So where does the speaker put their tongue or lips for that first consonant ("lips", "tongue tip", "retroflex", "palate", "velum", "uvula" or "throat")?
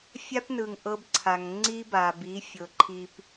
lips